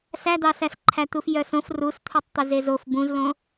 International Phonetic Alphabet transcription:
s æ d̪ ɑ s æ s ǃʰ æ t̪ u f j œ s õ f r u s t̪ʰ u tˤ t̪ ɵ z e z o f b ũ z l õ

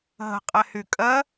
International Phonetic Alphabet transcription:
ɦ ə̤ qʼ ɛ h y kʼ ɜ

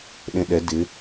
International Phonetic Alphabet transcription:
ɗ ẽ ɗ ɛ d ɪ

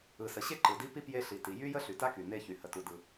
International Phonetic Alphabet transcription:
ɯ˩ s ə˩ ɕ e˥ ǃ ɯ˩ d i˥ p i˥ p j e˥ ɬ i˩ t i˩ j y˥ j ə˥ ɬ y˩ t a˥ k y˩ n e˥ ç y˩ h ə˩ t u˩ d ɯ˩

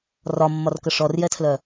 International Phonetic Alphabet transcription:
r ɒ mː ɒ r k ə ʂ ɔ r j ɛ tʰ l œ

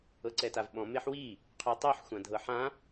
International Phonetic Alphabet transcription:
ɤ ǀ ɛ t a v ɓ ɔ̃ m e ħ w i | qʰ y tˤ y ħ xʷ ã dʱ ɤ ħ ã

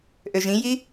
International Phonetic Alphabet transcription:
ʔ ø ʒ ĩ j i

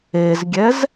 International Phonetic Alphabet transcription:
e z ɡʲ ɛ z

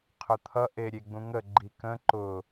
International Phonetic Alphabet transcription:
qʰ ʊ t̪ʰ ʌ ʔ e ɾʲ e ɡ͡b ũ ŋ ə ɡ͡ǃ i k ə̃ ǃ ʊ

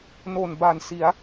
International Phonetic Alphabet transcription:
n o˨˩ n b a˨˩ n s i˩˦ a̯

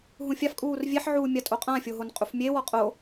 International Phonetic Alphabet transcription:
ɦ ũ fʲ a f kʼ uː r vʲ e ħ ʕ uː mʲ a tʼ o qʼ ã fʲ o ɦ o n qʼ u f mʲ e w ɔ qʼ o

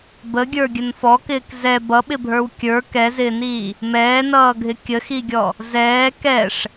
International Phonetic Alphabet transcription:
b ə ɡʲ ə˞ ɡʲ ə n f ɔ k ɪː k z ɛ b ʌ ɓ ɪ bʱ ə˞ w kʲ ə˞ k ɛ z ɪː n iː | m ɛː n ʌː ɡʱ ɪ kʲ ə x i ɡʲ ɔ | z ɛː k ɛ ʂ

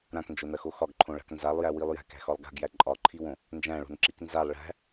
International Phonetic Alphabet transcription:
ɾ ã k n d͡ʒ o n ɐ x o x ɒ ɡ ǃʰ õ ɭ a̤ k n z a lˠ j æ w i lˠ j æ̤ k æ̤ x ɒ lˠ ɡ a̤ ɡ j æ ǃʼ ɒ ǃʰ i w õ | n d͡ʒ æ̃ ɭ o̤ n ǁ i k n z a lˠ ɭ æ̤

